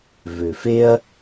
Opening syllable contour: low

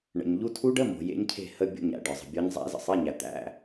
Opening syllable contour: low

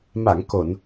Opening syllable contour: low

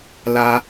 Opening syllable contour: high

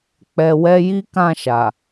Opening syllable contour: low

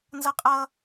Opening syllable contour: high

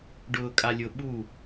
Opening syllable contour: low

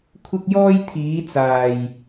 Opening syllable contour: high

